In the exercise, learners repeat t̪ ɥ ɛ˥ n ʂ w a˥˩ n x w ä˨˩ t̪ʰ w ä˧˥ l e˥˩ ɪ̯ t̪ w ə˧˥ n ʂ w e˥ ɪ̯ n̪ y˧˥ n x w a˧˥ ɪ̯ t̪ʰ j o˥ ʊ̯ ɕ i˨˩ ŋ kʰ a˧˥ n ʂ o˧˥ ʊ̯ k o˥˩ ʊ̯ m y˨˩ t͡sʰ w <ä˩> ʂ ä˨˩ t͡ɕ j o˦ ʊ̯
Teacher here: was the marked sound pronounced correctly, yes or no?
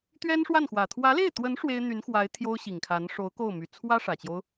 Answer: no